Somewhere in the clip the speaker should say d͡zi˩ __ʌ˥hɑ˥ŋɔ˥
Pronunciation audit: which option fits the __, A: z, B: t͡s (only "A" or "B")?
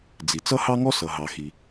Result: B